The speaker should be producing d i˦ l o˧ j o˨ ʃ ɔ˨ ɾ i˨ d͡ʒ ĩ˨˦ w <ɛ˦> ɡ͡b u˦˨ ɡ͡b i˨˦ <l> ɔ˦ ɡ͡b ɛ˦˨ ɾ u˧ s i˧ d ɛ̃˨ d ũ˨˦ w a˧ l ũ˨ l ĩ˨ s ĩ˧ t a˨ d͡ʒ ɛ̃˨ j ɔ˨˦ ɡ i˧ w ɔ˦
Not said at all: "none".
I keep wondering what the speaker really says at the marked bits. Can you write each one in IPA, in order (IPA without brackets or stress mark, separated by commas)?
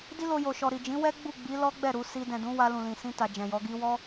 ɛ˦, l